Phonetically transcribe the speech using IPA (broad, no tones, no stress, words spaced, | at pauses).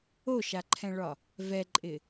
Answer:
oʃaǃʰɛ̃ɭɒ | vɛǃʼɪ